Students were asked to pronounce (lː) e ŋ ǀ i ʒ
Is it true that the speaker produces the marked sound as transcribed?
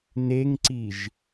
no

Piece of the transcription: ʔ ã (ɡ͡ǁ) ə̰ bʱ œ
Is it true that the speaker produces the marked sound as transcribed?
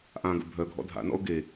no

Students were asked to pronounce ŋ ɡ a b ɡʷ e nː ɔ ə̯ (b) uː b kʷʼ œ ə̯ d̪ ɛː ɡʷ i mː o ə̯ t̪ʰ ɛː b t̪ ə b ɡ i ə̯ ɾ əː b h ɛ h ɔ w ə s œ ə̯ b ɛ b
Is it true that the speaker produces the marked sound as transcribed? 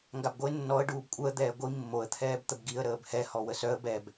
no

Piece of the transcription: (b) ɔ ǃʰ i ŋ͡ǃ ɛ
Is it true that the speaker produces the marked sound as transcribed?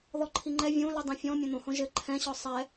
no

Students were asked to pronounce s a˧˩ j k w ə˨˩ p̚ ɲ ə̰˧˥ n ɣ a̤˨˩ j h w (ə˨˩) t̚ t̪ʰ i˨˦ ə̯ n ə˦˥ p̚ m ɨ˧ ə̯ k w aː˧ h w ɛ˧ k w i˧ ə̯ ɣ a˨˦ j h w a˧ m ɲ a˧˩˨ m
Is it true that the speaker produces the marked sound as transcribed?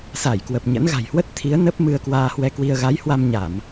no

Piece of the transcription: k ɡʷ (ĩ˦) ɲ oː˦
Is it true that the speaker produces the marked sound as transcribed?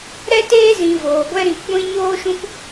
yes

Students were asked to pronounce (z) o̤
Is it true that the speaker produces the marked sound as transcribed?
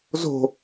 yes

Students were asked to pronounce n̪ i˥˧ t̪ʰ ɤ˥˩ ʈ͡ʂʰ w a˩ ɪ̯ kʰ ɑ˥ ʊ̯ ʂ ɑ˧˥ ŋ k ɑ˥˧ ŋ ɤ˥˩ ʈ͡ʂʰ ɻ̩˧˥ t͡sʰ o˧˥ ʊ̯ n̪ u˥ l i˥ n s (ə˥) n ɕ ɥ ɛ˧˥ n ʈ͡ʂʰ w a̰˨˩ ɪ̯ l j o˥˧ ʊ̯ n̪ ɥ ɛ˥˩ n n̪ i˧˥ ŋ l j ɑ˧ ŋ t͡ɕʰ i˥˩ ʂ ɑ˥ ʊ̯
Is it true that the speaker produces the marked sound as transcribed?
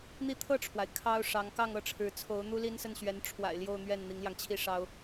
no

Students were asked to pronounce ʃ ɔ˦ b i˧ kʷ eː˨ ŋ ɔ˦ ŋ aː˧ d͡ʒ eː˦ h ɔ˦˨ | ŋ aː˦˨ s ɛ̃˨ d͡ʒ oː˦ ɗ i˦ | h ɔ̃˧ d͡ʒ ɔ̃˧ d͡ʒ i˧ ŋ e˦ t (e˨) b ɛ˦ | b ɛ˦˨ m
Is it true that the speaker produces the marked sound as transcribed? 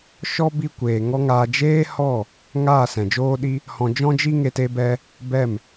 no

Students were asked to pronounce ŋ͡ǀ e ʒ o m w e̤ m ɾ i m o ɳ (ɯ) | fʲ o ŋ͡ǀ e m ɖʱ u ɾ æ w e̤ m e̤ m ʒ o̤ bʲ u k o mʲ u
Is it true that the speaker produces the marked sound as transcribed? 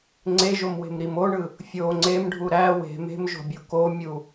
yes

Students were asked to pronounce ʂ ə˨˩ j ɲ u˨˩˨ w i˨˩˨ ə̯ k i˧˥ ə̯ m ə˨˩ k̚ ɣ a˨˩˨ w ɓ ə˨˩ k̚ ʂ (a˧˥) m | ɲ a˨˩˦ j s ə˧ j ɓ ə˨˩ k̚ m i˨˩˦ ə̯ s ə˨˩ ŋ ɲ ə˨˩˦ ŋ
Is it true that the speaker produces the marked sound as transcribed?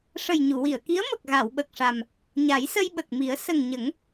no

